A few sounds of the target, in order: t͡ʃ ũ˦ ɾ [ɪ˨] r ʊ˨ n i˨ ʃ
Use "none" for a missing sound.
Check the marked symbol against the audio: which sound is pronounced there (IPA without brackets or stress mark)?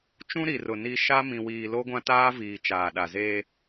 i˨